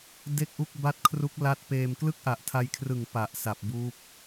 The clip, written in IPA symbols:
de˥˩k̚ʔu˥˩k̚ba˥˩t̚ kʰru˦˥k̚la˦˥t̚peː˧m klɯ˥˩k̚ʔa˨˩ʔtʰa˧jkʰrɯ˨˩ŋ pa˨˩ʔsa˨˩p̚ buː˦˥p̚

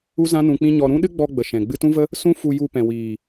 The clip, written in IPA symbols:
u˦zã˦ nũ˧k͡pĩ˦ɲɔ˧ ɾũ˦ ɗɨ˦ɡ͡bɔ˧ɡ͡bə˨ ʃɛ̃˨ ɡ͡bɨ˧tũ˦və˦ | sũ˦fu˧ ju˧pɛ̃˨wiː˨

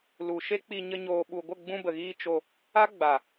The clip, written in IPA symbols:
lu˨ʃe˦k͡pi˧ ɲə˧ɲoː˨ɓu˨ɡʷə˦˨ ɡ͡bũ˧bə˨ɣiː˧ t͡ʃo˧ | a˦ɡ͡ba˨

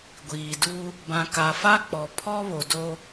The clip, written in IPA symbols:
ɡʷiː˨du˦ | bã˨ka˨fa˦k͡pɔ˨ pʰɔ˦βo˨do˦

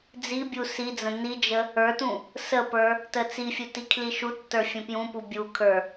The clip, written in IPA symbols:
d͡zibʲu sid͡zə̃ nid͡ʒə | ə˞tũ | səpə˞ | tət͡sifʲu tikʰliʃutːə˞ fʲə̃pjũpu bʲukʰə˞

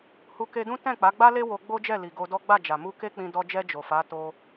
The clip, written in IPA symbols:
hu˧ ke˧dũ˦ tɛ̃˦˨k͡pa˨˦ɡ͡ba˦le˦ wo˧ɡ͡bo˦d͡ʒɛ˦˨ li˨ ɡo˧dɔ˦ ɡ͡ba˦˨ d͡ʒa˨mu˧ ke˦k͡pĩ˧ dɔ˧d͡ʒɛ˧ d͡ʒo˨fa˨˦ to˧

